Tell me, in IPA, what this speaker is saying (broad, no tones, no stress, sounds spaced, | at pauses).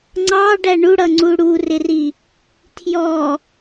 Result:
ŋ͡ǀ ɑ ɖ æ ɳ u ɽ ʌ ŋ͡ǀ u ɽ u r ɪ r i | tʰ j ɔ